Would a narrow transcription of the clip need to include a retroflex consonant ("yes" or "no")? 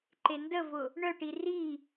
yes